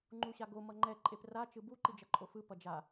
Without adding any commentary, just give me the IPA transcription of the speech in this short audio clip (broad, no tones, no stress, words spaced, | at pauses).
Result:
ŋ͡ǃuɕaɡo mʌŋ͡ǃɛ ǃʼepra t͡ʃɯbu ǃid͡ʒʌǃʼofɯ pʌd͡ʒa